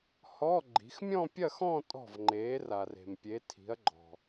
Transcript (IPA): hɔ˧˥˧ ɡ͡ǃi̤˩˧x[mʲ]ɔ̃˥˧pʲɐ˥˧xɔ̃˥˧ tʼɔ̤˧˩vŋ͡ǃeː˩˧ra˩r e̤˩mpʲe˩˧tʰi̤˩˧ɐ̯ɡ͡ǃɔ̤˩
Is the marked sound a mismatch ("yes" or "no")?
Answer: no